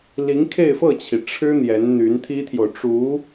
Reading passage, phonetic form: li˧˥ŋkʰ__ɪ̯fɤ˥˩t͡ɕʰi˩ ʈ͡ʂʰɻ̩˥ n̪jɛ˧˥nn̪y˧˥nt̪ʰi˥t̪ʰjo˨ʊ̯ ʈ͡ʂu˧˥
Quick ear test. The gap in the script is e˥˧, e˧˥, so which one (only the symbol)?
e˥˧